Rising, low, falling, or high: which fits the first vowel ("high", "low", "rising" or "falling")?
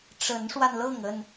rising